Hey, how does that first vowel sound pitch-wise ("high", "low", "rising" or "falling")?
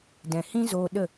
low